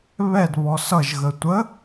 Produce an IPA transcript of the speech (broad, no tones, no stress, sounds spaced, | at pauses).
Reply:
β ɛ d β ɔ s ʌ ʒ ɣ ə tʷ ə